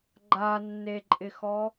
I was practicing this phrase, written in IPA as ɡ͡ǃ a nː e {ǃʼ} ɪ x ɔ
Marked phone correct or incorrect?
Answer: correct